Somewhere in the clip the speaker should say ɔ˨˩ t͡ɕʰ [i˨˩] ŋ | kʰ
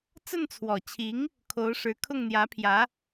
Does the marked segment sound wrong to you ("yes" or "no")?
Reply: yes